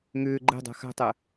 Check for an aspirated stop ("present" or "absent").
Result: absent